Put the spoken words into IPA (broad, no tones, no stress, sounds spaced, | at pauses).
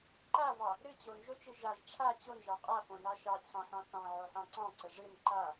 ǃ a v ɑ | ɾ ɨ t͡ɕ o n ʒ o t͡ʃ ɨ ʒ a z ʈ͡ʂʰ a t͡ɕ o n ʒ ɑ qʼ a f õ n ɑ ʃ ɑ t͡ɕʰ ɑ̃ ħ ɑ̃ θ ɑ̃ ʕ o ħ ɑ̃ ǀ ɑ̃ ǀ ə ʐ ɨ n ǃ a